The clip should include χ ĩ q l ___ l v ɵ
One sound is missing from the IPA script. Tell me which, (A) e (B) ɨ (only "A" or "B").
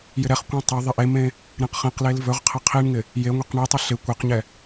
A